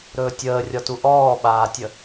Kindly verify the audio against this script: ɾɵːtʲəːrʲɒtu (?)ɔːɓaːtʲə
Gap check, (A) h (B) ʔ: B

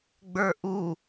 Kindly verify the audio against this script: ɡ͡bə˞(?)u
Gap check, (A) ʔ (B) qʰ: A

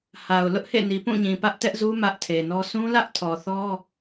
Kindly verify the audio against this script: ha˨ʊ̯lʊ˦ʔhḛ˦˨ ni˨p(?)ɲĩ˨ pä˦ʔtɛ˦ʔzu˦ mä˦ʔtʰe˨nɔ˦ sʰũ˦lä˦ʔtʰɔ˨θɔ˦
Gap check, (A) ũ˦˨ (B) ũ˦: A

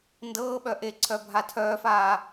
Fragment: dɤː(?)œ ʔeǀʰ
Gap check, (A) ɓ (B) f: A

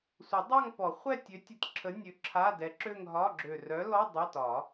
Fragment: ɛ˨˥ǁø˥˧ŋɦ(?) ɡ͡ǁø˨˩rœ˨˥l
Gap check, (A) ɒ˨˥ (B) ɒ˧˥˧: B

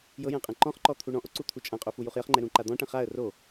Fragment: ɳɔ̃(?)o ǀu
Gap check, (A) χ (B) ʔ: B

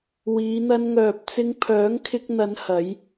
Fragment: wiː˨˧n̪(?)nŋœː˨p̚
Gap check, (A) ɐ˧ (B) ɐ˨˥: A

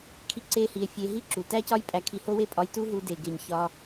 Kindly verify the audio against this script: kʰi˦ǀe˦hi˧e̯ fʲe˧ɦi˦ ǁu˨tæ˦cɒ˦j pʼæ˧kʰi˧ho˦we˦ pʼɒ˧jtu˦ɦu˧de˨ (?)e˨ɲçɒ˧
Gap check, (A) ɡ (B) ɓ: A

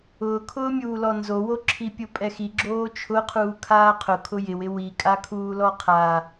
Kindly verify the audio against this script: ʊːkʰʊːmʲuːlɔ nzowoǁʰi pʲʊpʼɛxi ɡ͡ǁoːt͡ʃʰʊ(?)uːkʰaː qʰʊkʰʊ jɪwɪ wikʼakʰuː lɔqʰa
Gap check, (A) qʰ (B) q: A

